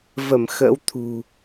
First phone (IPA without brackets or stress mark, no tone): v